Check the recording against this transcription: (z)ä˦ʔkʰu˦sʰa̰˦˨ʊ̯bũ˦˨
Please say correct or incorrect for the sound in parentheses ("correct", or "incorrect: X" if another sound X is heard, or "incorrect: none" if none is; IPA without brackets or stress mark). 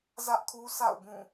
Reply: correct